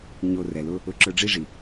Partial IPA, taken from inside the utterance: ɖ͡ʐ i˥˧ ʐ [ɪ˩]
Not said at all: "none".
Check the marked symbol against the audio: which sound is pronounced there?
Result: i˩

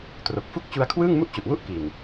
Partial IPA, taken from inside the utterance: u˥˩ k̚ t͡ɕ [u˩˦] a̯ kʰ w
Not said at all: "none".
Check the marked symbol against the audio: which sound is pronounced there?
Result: u˦˥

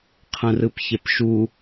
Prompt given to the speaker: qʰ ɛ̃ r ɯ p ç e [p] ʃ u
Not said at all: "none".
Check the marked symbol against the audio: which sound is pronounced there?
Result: p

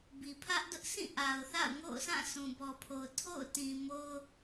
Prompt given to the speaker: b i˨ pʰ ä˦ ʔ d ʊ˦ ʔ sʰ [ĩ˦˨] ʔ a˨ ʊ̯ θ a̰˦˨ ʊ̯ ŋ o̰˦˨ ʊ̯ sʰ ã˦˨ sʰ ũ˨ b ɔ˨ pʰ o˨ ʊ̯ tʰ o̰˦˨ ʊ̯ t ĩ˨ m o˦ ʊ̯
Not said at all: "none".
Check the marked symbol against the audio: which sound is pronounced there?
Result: ĩ˦˨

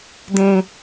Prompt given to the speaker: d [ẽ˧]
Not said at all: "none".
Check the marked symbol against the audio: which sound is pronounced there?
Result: ẽ˧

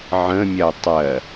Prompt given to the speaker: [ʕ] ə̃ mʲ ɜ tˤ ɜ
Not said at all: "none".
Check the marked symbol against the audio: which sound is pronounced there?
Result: ʕ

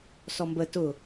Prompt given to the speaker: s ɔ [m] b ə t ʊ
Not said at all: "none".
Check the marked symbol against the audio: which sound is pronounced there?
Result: m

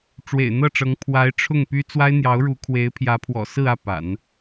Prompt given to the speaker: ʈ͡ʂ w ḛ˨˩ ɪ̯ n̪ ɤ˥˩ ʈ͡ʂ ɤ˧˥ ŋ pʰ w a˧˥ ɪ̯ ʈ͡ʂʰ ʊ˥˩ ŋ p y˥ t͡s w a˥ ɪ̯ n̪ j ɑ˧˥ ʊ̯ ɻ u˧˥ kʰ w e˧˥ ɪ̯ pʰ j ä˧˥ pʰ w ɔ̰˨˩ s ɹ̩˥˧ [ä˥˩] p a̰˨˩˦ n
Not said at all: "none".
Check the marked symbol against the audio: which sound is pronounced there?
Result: ä˥˩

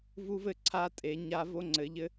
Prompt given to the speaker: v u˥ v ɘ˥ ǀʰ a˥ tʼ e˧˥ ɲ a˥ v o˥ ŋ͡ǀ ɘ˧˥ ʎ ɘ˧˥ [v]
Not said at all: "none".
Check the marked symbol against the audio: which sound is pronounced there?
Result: none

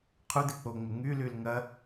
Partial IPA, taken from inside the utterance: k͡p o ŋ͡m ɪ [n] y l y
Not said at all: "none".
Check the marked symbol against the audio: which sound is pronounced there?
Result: ŋ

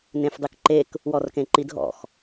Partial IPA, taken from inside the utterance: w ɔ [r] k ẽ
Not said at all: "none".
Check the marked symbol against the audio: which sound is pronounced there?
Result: r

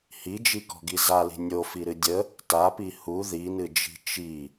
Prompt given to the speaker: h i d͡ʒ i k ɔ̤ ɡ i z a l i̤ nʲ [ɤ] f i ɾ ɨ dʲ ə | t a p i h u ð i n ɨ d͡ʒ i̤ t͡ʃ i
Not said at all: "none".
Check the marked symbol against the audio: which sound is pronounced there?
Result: o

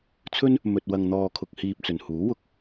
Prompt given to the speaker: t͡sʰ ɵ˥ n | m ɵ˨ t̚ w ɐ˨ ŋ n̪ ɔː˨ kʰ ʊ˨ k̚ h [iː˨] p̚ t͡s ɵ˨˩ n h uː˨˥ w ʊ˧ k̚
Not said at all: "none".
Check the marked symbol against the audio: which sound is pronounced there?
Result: iː˨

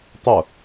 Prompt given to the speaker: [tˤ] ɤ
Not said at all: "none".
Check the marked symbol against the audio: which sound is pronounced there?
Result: tˤ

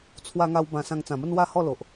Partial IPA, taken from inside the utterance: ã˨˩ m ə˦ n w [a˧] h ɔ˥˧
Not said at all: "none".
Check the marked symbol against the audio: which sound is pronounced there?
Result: a˥˧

